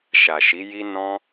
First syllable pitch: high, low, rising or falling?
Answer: low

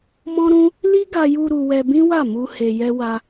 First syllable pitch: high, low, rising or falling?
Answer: high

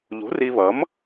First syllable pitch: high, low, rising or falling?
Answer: rising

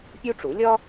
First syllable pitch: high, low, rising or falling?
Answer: high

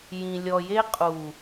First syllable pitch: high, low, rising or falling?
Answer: low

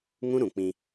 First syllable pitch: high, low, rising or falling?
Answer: high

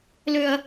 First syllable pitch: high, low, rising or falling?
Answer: high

